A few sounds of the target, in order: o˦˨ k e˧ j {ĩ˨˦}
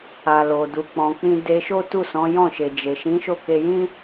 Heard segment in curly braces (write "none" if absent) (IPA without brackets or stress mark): ĩ˦